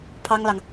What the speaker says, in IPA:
pʰ ɑ˥ ŋ l ɑ˨ ŋ

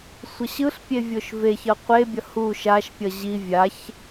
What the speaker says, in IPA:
sʷ ʌ ɕ ɯ ɬ pʲ e vʲ o ʃ v e ç ʌ qʷ e bʲ ʌ h u ʃ a ʃ pʲ ʌ ʑ i vʲ a ç

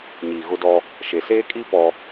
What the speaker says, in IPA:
ɲ iː˨ ɣ ʊ˦ d ɔ˦ | ʃ e˨ s eː˦ kʼ i˦ p ɔ˦

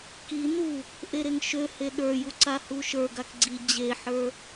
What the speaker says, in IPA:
k i n u | ʔ e ɾ e ŋ ʃ ø h e ɗ ə˞ j u ǀ a h u ʃ ə˞ ɡ a k ɡ͡ǀ i d͡ʑ e ħ ə˞

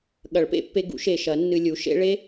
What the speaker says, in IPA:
ɠ ɐ˨˩˦ ɭ p ḛ˨˩˦ pː e˧ ɡ ṵ˩˥ ʃ e˨˩ ʃ ɐ˨˩˦ nː ɨ˧ lʲ u˩˥ ʃ ḛ˦˥ ɭ e˦˥

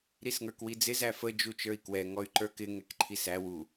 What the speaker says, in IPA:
ɾ i s ŋ ə˞ k w i d͡z ɪ z æ f ə d͡ʒ u t͡ʃ ə˞ i̯ k w ɛ ŋ ɔ y̯ ǃ ə˞ k ɪ ŋ ɛ k ǃʰ i s æ w u

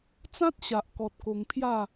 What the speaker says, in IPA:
t͡s ã˦ t̚ ɕ a˨ ʔ k ɔ˨ t̚ k o˧ ŋ pʰ j a˥˧

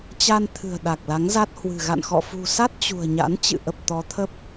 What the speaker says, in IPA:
t͡ɕ a˧ n t̪ʰ ɨ̤˨˩ ə̯ ɗ a˨˩ k̚ l a˨˦ ŋ z a˦˥ t̚ h w ɨ̤˨˩ ɣ a̰˧˨ n x ɔ̰˧˨ f ṳ˨˩ s a˦˥ t̚ t͡ɕ ṳ˨˩ ə̯ ɲ a̰˧˥ n t͡ɕ ɨ̰˧˨ ʔ ə˨˩ p̚ t̪ ɔ˨˦ t̪ʰ ə˦˥ p̚

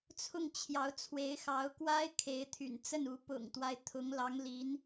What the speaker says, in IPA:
t͡sʰ ʊ˥˩ ŋ t͡ɕʰ j ɑ˧˥ ʊ̯ t͡sʰ w e˧˥ ɪ̯ x ɑ˧˥ ʊ̯ k w a˥ ɪ̯ kʰ e˧˥ ɪ̯ t̪ʰ y̰˨˩ n t͡s ə˥˩ n u˧˥ p ʊ̰˨˩ ŋ t̪ w a˦ ɪ̯ t̪ʰ ʊ˧˥ ŋ l ɑ˧˥ ŋ l i˧˥ n

